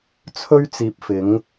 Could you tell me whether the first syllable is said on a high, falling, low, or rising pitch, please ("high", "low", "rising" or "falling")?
high